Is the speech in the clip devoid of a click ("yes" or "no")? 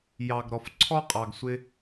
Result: no